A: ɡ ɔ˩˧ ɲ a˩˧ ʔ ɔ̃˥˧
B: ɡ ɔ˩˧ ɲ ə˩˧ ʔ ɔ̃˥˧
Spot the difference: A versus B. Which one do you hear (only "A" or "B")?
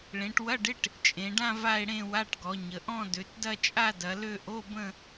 B